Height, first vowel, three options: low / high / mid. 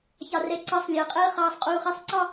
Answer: low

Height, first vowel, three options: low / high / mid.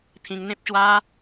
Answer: high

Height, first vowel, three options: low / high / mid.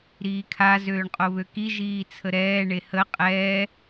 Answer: high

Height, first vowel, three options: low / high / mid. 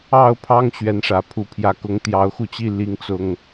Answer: low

